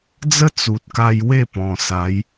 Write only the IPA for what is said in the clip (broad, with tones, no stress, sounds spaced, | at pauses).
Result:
d͡z ə˦ t͡s u˨ t̚ k a˧ j w e˥˧ p ɔ̃˨˩ s a˨˦ j